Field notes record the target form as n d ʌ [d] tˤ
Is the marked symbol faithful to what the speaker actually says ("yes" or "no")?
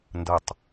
no